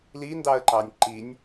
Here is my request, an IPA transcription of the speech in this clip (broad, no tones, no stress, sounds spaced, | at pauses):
l i n d ɑ ə̯ ǃ ɑ nʲ ǃ i nʲ